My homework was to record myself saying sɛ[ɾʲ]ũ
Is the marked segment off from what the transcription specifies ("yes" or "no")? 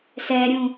no